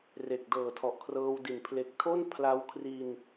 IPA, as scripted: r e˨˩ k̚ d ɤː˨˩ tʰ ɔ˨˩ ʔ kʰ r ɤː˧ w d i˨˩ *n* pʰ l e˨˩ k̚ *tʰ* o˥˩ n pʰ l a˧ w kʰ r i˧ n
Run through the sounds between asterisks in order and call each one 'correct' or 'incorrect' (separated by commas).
correct, correct